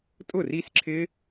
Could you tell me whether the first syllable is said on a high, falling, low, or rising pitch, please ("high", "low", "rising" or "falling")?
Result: falling